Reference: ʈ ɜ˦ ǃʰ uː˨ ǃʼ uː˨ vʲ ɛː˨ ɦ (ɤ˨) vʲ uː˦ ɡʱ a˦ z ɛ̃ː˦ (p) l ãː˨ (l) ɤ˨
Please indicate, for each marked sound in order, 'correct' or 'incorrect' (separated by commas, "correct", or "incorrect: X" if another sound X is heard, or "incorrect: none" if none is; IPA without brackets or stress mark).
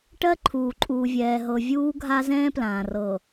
correct, correct, incorrect: r